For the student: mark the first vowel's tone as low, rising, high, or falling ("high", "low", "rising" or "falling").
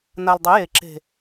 low